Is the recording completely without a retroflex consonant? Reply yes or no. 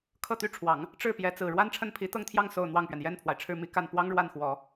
no